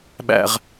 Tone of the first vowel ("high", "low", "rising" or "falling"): low